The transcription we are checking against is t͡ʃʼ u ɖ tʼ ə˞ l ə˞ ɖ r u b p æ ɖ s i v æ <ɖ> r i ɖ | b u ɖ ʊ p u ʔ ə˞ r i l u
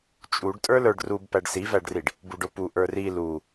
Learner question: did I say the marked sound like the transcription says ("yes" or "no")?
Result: yes